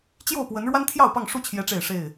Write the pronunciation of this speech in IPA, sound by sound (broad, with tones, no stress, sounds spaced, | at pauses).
t͡ɕ j o˥˨ ʊ̯ p w ə˨˦ n ɻ w a˦ n t̪ʰ j ɑ˥˨ ʊ̯ p ɑ˥˨ ŋ ʂ u˥˨ t͡ɕʰ j ɛ˦ ʈ͡ʂ e˥˨ ɪ̯ ʂ e˥˨ ɪ̯